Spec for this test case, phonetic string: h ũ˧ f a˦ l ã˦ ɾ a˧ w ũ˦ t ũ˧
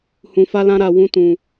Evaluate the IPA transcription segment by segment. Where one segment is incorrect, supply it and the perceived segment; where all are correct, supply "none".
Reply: none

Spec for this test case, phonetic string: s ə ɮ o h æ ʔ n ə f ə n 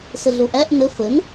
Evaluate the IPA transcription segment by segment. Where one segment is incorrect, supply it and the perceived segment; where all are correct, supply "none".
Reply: h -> ʔ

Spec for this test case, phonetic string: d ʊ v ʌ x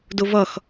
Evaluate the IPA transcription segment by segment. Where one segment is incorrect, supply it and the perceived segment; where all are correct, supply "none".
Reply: none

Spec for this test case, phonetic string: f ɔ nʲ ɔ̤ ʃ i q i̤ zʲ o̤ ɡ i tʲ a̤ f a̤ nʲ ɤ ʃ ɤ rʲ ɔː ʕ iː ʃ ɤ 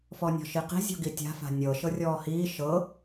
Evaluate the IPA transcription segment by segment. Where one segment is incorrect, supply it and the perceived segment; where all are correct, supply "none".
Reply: ʕ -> h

